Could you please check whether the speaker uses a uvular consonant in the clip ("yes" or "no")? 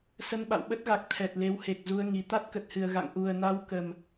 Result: no